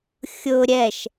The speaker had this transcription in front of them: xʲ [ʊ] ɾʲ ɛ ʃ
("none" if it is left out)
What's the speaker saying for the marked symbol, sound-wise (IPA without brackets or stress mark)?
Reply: ʊ